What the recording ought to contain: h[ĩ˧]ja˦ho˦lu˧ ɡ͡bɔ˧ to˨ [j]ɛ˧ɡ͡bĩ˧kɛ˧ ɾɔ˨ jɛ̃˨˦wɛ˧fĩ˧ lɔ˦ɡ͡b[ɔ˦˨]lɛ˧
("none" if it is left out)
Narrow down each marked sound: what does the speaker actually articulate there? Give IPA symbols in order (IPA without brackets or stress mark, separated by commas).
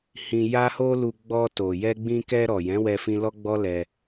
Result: ĩ˧, j, ɔ˦